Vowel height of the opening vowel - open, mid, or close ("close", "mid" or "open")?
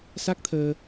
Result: open